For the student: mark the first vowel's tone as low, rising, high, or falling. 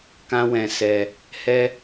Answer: high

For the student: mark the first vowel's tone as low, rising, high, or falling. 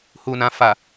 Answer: low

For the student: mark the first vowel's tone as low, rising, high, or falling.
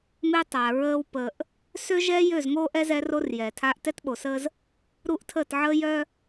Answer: high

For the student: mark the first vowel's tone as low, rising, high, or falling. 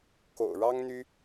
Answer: low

